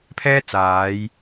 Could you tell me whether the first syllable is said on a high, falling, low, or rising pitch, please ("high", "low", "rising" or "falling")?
high